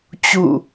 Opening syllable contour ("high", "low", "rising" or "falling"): falling